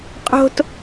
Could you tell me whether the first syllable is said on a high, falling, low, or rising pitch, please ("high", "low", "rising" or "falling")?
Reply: high